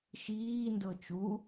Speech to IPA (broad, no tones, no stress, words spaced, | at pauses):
ʃiː ndɤt͡ʃu